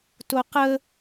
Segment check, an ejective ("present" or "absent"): absent